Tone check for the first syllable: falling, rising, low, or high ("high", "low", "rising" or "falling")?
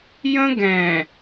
high